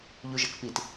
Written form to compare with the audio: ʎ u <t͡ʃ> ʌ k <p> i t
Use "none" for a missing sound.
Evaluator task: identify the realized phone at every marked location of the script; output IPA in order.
ʒ, p

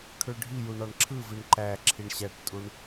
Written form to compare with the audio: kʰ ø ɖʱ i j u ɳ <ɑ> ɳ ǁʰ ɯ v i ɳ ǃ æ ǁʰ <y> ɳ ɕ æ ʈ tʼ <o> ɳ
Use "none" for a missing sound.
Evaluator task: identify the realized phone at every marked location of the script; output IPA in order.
ɑ, i, u

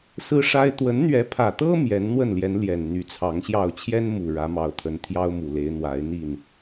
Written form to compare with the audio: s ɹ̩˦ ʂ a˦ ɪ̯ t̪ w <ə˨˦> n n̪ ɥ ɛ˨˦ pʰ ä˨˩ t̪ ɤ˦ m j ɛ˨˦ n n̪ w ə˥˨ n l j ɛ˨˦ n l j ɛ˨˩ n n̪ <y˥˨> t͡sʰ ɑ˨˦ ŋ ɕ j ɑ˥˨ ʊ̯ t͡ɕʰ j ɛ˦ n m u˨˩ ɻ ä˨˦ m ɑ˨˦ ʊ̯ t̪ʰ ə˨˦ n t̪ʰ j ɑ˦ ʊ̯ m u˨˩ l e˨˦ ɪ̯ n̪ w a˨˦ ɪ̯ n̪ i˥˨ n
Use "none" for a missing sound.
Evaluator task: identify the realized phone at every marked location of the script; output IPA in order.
ə˨˦, y˨˦

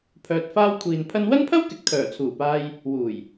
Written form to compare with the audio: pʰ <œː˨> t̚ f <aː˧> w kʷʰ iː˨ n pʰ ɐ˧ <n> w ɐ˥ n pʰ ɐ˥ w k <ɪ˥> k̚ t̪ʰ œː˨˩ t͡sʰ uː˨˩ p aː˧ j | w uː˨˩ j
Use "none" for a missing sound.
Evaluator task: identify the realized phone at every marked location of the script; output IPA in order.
œː˨, aː˧, n, ɪ˨

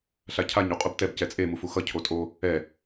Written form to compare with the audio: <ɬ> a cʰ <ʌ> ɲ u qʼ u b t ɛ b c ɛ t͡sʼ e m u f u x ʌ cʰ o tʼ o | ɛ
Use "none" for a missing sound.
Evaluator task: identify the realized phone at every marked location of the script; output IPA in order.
ɬ, a

